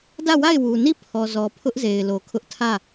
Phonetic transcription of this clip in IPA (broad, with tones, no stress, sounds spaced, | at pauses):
d ä˦˨ w a˦˨ ɪ̯ w u˨ n i˦˨ pʰ ɔ˨ z ɔ˨ pʰ ʊ˦ ʔ z e˨ ɪ̯ l o˨ kʰ ʊ˦ ʔ tʰ ä˦˨